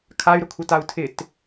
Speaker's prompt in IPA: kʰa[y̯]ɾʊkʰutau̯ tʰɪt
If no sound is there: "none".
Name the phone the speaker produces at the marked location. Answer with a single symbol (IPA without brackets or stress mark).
y̯